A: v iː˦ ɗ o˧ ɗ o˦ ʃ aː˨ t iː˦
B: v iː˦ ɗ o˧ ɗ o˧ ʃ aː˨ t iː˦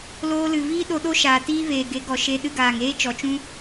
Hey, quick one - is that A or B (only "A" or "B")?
A